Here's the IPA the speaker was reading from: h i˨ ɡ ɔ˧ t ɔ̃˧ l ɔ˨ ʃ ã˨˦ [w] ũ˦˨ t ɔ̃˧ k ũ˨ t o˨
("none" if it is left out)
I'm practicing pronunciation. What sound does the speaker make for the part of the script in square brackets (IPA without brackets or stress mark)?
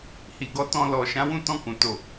w